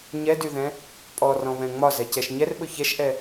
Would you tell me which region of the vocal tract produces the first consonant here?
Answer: palate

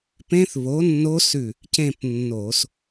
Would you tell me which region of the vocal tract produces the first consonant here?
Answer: lips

